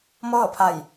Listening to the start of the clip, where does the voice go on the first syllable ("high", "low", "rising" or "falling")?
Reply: falling